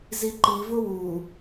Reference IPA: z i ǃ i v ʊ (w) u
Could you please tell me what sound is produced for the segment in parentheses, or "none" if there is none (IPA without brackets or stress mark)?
w